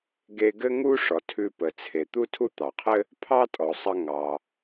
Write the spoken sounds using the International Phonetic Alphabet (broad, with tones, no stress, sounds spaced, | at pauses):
ɡ e˧ ɡ ɘ˥ ŋ u˥ ʂ ɔ˩ tʰ ʉ˧ p ə˩ t͡sʰ e˩ t̪ u˥ tʰ u˥ t̪ ɑ˩ qʰ ɘ˥ | pʰ ɑ˥ tʼ ɔ˩ sˤ ə˧ ŋ ɑ˩